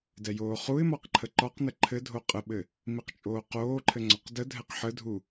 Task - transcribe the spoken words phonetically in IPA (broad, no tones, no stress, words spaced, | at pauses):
dɛjoːχuɪ̯mɒq ǃʰəǃɒqnə ǃʰɘdʱo qʼəɓɘ | miqt͡ʃʼoːqoːǃʰɘ ŋ͡ǀɒqdədʱɛq ħədʱu